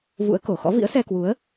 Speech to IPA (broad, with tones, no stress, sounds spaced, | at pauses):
v ṵ˧˥ ə̯ k o˧˩ x ɔ̰˧˥ v ḭ˧˥ ə̯ s ɛ˧ k w u˨˦ ə̯